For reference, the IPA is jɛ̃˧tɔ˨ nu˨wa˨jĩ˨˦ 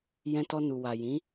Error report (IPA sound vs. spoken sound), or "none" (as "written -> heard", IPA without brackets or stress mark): ɔ˨ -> ɔ˧